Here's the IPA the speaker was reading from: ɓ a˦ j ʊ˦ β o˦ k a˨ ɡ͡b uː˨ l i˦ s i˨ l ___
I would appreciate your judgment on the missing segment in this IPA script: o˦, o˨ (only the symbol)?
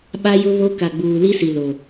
o˨